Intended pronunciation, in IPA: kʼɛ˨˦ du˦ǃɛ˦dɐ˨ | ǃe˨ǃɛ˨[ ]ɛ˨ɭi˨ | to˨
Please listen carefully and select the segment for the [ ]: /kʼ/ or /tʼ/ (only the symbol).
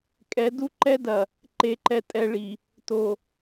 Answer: tʼ